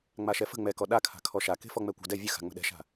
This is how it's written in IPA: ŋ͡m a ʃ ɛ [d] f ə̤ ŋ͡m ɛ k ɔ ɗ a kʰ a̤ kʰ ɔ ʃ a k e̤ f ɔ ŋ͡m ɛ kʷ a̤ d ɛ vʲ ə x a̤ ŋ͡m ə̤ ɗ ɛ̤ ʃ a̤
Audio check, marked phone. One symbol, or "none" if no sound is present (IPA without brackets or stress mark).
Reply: none